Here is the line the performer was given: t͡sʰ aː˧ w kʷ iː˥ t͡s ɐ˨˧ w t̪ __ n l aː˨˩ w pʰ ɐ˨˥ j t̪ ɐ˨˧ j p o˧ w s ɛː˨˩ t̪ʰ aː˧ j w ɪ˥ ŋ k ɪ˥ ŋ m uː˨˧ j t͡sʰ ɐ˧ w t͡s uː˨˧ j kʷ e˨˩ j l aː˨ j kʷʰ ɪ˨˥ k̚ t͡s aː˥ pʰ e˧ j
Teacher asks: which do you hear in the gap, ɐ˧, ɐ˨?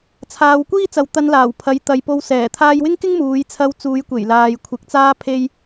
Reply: ɐ˧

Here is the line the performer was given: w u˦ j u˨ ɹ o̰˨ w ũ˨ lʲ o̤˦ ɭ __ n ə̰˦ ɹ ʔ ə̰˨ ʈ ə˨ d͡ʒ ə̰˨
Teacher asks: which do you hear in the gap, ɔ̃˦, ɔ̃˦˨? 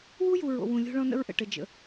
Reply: ɔ̃˦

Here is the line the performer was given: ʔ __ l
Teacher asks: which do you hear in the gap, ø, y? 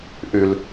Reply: y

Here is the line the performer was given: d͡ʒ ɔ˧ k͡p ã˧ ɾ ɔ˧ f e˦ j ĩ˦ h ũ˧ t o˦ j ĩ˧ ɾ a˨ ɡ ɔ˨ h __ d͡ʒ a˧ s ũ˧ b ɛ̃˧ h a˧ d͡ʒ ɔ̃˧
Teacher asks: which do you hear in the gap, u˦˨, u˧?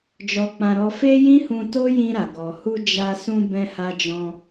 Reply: u˧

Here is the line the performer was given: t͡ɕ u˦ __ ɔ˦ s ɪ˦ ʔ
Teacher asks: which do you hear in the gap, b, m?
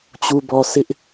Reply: b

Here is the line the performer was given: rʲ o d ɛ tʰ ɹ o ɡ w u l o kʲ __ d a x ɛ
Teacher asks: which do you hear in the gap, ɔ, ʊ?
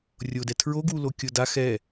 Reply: ʊ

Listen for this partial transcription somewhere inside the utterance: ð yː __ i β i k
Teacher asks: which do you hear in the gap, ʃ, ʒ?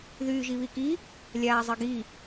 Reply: ʒ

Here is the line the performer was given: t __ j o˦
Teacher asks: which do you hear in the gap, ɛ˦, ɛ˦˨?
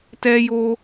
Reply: ɛ˦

